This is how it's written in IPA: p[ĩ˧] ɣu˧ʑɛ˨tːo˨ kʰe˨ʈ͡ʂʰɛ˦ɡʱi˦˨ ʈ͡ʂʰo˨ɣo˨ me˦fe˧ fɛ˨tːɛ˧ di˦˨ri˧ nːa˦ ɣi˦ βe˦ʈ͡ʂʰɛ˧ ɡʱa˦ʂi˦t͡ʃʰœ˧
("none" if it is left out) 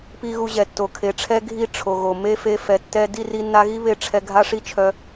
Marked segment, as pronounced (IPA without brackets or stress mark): i˧